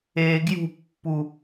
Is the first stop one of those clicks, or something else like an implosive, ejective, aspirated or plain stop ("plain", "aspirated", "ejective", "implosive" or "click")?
plain